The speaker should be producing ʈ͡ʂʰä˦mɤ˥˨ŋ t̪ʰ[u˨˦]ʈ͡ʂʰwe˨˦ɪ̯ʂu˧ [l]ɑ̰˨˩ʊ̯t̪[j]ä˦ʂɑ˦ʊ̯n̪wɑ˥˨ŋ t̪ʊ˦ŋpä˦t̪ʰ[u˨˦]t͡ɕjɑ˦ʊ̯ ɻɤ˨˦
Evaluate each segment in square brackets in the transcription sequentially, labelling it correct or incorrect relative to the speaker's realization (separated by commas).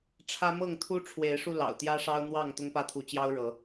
incorrect, correct, correct, correct